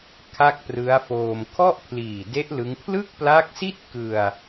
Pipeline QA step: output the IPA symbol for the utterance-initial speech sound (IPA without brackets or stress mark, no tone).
kʰ